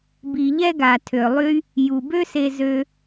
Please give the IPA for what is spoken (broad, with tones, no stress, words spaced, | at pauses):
bi˨ʎɛ˦ ɡa˨tʰø˨ lˠy˦ | ju˨bø˦se˧zø˧